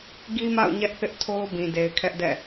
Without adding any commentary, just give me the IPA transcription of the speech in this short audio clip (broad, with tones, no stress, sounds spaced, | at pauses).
ɡ i˦ m a̰˦˨ ʊ̯ ɲ ɛ˦ ʔ θ ɪ˦ ʔ tʰ o˦ ʊ̯ b ĩ˨ d e˨ ɪ̯ kʰ ɛ˦ ʔ d ɛ̰˦˨